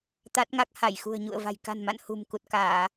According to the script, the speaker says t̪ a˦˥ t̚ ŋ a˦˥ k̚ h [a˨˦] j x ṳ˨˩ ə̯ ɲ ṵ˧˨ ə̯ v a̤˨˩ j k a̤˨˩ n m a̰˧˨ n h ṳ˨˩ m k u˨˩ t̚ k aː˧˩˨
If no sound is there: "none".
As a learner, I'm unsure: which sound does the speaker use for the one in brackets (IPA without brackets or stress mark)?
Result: a˧˩